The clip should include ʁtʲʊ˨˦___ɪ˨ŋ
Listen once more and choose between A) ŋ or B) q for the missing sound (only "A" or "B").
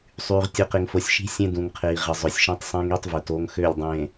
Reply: B